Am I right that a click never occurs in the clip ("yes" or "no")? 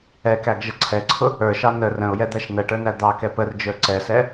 no